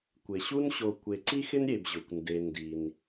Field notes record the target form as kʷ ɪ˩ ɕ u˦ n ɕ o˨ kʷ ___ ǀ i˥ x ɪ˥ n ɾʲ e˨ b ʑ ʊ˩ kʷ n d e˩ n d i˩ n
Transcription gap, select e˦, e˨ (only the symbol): e˨